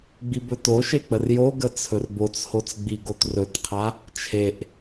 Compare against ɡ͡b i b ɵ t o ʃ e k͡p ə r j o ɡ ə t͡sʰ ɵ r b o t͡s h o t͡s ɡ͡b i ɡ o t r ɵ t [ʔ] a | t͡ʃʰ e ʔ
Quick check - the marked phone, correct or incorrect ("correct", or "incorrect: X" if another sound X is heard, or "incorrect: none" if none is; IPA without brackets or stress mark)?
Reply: incorrect: qʰ